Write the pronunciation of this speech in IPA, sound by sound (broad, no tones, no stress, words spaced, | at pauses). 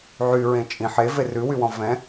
ʕyɹẽ t͡ʃʼĩ ħever ʉwywɔ̃ vɛ̃